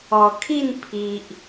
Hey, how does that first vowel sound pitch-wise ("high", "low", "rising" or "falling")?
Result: low